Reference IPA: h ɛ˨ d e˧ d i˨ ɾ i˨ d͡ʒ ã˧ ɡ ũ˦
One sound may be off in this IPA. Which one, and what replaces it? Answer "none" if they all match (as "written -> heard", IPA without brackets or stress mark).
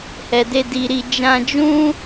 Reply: ɡ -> d͡ʒ